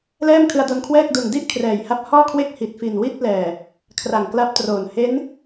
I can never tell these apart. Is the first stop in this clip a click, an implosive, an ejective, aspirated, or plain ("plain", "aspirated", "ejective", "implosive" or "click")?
aspirated